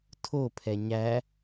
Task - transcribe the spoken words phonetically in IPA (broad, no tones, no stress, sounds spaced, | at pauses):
tʰ o pʰ ɛ ɲ æ